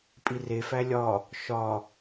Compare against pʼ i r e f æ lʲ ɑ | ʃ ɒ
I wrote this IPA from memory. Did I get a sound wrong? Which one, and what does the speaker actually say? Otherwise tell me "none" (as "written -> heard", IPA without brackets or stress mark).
ɑ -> ɒ